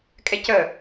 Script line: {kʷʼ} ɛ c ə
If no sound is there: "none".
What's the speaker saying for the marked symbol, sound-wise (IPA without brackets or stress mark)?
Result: kʼ